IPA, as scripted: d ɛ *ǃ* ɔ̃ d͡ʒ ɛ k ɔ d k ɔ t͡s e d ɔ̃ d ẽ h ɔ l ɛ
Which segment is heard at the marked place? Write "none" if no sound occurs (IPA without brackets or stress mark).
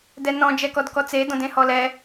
n